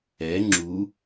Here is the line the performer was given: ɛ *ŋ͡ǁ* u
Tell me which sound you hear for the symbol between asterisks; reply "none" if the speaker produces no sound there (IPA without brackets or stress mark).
ŋ͡ǁ